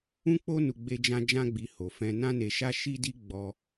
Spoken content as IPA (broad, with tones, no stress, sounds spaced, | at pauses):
ũ˦ k͡p o˦ n u˧ ɡ͡b e˧ d͡ʒ ã˧ d͡ʒ ã˦ ɡ͡b i˧ h o˨ f ɛ̃˧ n ã˦ n e˧ ʃ a˦ ʃ i˦ d i˦ ɡ͡b ɔ˧